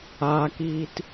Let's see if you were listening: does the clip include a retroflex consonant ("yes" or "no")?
no